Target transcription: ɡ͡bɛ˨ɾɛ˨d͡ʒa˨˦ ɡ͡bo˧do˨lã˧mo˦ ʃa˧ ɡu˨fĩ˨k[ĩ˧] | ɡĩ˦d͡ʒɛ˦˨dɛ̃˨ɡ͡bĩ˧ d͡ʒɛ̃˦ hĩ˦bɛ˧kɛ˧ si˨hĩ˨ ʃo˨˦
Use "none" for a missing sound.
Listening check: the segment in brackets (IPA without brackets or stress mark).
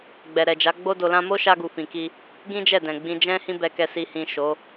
i˧